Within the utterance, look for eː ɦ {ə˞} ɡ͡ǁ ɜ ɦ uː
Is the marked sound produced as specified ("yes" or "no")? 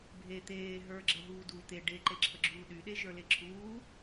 yes